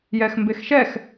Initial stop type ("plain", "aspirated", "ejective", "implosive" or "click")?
plain